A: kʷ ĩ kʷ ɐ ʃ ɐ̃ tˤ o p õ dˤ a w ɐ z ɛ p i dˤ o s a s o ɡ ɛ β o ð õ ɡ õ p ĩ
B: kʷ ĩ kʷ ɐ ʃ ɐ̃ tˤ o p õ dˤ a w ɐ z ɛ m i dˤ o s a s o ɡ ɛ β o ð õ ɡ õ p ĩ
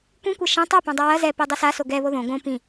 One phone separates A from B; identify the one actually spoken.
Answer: A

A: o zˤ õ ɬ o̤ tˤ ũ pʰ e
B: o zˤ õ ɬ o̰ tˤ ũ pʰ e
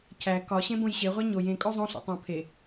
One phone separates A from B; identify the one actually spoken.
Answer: B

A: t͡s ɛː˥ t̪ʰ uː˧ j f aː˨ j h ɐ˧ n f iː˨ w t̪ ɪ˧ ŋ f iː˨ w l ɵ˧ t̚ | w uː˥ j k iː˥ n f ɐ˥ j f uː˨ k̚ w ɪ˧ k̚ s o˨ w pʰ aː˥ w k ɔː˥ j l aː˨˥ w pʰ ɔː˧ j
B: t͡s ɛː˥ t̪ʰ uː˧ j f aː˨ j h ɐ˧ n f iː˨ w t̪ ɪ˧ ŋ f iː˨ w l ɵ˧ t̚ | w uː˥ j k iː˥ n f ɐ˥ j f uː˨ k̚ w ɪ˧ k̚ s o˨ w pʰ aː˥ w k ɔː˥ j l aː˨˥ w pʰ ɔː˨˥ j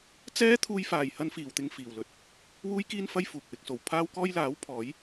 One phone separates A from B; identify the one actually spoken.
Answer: B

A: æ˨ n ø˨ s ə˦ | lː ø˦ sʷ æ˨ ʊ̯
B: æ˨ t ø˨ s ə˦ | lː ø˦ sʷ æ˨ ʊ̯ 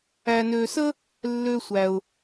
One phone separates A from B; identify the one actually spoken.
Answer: A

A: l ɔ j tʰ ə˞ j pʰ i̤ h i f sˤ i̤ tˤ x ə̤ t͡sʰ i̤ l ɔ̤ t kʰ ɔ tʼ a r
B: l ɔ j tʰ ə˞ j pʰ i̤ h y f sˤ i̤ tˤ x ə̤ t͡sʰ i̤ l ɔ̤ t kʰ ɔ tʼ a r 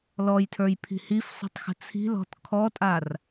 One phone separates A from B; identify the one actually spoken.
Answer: A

